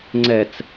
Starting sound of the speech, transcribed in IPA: ŋ͡ǀ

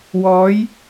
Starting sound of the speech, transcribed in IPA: w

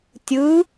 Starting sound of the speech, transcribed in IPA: tʲ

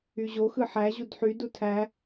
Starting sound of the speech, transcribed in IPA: y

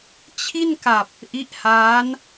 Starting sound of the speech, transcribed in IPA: t͡ɕʰ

